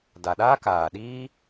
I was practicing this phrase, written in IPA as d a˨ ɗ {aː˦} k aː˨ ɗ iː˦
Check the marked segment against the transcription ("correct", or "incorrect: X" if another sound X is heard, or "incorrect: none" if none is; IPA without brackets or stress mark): correct